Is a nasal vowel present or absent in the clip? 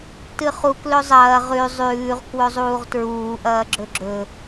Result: absent